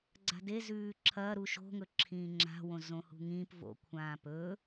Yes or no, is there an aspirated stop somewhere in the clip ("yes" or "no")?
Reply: yes